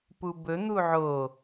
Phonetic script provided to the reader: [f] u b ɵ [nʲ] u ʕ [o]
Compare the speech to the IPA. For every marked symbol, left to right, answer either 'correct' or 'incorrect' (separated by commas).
incorrect, incorrect, correct